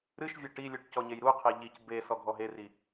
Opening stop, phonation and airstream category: plain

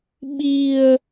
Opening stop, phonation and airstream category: implosive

